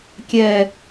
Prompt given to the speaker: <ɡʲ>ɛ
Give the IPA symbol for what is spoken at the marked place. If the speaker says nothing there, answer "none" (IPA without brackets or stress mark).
kʲ